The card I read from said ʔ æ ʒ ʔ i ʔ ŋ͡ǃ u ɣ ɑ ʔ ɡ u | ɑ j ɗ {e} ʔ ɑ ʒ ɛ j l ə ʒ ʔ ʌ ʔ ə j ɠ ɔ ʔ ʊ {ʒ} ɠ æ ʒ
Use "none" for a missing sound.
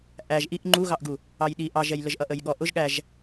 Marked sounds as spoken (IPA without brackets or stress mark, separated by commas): i, ʒ